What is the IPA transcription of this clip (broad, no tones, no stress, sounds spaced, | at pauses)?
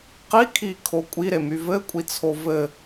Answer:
q i kʰ i kʰ o kʷʼ i ɾ e m y v ɘ kʷʼ i t͡sʰ o v ɘ